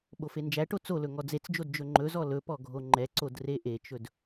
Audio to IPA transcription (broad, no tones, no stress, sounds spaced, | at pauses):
ɓ o f e n d͡ʒ æ ʈ o t͡s o l ɵ ŋ ɔ d͡z e t͡s d͡ʒ o d d͡ʒ ɵ ŋ͡ǃ ɵ z ɔ l ɵ p ɔ ɡʱ o ŋ͡ǃ ɛ ǀ o d r e ʔ e t͡ʃ ɵ d